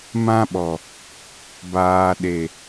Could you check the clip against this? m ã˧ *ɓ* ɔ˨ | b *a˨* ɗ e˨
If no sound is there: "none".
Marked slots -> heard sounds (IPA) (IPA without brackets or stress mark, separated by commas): ɓ, aː˨